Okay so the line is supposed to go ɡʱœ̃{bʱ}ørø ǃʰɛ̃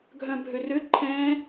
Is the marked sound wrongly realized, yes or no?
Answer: no